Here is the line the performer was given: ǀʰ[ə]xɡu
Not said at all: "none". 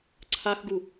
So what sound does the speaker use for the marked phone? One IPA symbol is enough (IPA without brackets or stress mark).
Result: a